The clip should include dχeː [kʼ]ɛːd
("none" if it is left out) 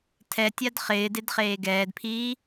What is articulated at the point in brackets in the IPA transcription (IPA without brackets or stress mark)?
ɡ